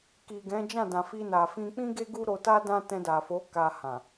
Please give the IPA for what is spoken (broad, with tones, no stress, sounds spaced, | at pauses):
k i˨ ɡ ɛ̃˨˦ d͡ʒ ã˦˨ d ã˨ f i˧ n a˨ f ĩ˧ k͡p ĩ˦ ɡ e˦ ɡ u˦ ɾ o˧ t a˦ d ã˦ t ɛ̃˧ d a˨ f o˨˦ k a˧ h ã˨